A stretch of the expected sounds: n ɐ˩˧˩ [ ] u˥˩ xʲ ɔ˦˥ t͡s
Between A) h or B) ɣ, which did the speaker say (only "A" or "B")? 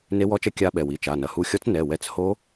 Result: A